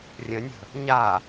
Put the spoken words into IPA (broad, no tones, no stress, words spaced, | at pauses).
rʲə̃nʲə̤ | ɲa